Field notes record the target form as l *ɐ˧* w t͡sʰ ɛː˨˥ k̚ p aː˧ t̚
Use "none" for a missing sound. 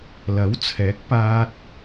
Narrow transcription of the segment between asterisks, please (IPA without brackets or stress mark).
ɐ˨˥